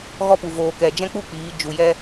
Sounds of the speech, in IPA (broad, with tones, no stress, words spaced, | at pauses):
ɣɔ˦pu˨ voː˨kɛ˨ d͡ʒɛ̃˦k͡pu˦ k͡piː˨˦ d͡ʒu˨jɛ˦